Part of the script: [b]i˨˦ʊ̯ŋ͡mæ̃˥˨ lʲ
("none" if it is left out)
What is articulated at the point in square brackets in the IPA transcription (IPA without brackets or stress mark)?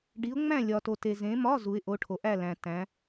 ɖ